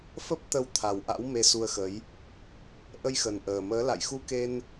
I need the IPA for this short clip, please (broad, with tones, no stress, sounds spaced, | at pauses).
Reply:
f ə˦˥ p̚ t̪ ə˧ w t̪ʰ a˨˩ w ʔ a̰˧˥ w m e˧ s u˧ ə̯ x ə˨˦ j | ʔ ə˧ j x ə˨˩ n ʔ əː˨˩ m əː˨˦ l a̰˧˨ j x u˧ k e˧ n